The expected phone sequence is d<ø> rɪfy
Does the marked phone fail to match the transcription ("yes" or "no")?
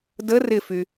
yes